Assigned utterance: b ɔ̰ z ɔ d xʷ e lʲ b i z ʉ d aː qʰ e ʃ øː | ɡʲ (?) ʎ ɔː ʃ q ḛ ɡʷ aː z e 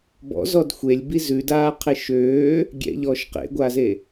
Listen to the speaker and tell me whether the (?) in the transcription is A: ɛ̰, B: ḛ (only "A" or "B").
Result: A